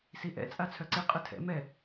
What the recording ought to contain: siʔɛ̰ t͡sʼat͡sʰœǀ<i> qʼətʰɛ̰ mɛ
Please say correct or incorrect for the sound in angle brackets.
incorrect